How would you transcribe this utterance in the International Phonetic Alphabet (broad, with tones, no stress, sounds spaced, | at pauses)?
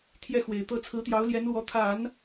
t̪ʰ j ɛ˥˩ x w e˨˩ ɪ̯ t̪ ɤ˥˩ t͡sʰ ɹ̩˧˥ t̪ j ɑ˧˥ ʊ̯ l j ɛ˧˥ n l w ɔ˧˥ t̪ʰ a˨˩˦ n